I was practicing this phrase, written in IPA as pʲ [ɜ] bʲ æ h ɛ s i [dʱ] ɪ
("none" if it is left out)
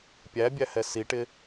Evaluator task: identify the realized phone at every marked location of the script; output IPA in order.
æ, ʈ

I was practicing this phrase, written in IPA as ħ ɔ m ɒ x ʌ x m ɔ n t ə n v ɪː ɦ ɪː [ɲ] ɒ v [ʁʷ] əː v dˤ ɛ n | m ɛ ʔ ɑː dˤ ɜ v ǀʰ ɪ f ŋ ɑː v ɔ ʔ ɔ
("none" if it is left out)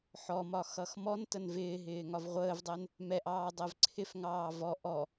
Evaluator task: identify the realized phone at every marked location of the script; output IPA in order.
ŋ, ʁʷ

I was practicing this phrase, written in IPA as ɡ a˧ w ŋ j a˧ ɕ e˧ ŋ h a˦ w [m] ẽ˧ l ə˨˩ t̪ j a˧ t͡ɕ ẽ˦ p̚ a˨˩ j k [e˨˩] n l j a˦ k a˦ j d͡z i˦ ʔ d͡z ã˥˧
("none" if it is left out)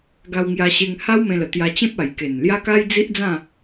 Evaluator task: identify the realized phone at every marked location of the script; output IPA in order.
m, e˨˩

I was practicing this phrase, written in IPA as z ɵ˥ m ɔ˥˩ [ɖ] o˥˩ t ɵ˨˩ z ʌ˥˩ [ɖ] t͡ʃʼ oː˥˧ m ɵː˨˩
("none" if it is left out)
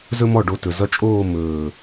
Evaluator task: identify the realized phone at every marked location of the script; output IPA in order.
ɖ, none

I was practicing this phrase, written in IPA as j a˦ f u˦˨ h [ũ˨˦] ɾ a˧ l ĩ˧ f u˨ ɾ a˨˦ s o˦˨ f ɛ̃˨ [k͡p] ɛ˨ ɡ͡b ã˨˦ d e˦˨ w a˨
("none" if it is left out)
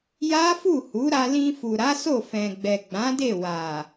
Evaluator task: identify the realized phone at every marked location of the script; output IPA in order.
u˨˦, ɡ͡b

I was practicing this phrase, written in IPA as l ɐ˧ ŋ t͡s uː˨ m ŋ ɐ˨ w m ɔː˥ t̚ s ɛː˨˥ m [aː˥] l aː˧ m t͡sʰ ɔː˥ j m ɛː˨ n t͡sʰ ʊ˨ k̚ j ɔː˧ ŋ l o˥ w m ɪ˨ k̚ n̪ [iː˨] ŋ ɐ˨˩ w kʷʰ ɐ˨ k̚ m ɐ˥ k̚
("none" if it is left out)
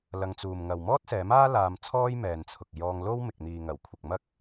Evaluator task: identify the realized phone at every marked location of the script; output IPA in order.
aː˥, iː˨

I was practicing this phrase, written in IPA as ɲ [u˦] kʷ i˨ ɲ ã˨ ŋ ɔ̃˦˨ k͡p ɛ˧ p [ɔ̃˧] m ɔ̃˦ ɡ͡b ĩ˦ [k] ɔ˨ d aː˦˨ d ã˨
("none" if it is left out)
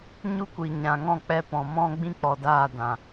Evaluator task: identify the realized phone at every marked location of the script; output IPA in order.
u˦, ɔ̃˨, k͡p

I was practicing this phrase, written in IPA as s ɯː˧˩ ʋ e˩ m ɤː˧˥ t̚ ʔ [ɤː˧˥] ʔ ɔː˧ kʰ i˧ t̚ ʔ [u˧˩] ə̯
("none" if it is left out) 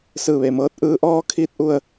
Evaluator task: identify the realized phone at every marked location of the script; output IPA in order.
ɯː˧˥, u˧

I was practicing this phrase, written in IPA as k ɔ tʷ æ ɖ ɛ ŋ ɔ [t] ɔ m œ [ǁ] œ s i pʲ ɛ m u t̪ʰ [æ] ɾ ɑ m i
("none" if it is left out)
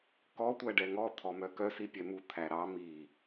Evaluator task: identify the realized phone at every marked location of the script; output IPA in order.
t̪ʰ, k, æ

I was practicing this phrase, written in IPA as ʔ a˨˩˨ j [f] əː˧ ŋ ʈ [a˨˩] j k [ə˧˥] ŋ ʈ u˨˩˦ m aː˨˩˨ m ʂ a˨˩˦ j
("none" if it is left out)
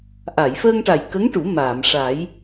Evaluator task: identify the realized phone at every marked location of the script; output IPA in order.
f, a˨˩, ə˧˥

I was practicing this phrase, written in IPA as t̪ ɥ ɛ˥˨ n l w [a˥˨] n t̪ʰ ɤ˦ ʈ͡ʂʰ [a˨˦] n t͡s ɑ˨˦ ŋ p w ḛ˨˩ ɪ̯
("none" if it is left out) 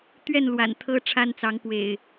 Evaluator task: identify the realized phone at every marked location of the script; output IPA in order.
a̰˨˩, a˦

